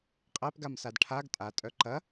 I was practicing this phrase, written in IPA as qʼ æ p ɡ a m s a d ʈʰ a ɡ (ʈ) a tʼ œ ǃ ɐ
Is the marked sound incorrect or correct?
incorrect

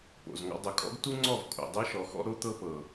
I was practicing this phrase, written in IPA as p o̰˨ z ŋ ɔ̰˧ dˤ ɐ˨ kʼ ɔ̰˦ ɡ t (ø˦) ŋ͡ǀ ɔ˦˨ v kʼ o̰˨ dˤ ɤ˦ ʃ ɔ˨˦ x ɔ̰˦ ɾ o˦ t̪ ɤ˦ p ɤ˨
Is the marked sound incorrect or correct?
incorrect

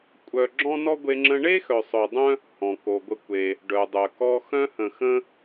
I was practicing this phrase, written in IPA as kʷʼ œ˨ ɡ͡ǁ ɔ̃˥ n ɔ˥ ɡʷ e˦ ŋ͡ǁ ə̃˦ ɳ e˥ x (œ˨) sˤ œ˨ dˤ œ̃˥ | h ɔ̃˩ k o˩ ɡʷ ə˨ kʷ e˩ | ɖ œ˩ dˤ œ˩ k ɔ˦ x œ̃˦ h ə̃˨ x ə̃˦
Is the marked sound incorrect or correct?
correct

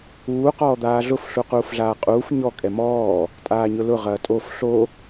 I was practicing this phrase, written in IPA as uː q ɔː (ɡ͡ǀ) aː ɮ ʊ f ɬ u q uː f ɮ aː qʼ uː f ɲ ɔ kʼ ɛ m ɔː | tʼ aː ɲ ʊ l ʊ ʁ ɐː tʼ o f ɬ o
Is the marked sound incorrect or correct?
incorrect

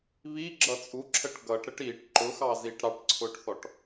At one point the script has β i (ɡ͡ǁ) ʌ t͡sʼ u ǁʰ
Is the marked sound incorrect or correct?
correct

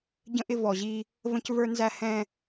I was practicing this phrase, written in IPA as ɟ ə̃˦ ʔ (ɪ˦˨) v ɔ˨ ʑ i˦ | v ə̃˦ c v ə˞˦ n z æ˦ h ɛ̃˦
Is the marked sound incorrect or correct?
incorrect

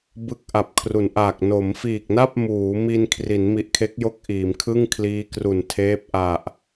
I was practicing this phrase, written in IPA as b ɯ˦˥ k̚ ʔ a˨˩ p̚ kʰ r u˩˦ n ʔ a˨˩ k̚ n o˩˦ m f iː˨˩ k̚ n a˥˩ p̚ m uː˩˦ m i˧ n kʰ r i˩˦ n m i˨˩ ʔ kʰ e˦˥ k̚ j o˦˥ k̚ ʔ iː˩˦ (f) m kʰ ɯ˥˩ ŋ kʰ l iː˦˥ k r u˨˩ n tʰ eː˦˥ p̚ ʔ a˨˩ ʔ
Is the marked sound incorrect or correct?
incorrect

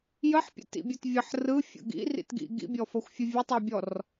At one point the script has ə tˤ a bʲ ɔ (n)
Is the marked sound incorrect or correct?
incorrect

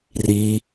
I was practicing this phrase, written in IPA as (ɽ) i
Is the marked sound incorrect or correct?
incorrect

